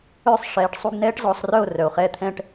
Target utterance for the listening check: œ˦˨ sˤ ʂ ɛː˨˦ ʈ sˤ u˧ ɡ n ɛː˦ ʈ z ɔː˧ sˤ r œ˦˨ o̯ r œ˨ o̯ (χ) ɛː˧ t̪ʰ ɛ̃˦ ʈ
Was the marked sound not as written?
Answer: no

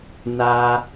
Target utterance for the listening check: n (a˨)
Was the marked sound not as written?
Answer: yes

